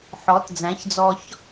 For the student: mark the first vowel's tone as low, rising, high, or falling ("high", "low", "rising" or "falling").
rising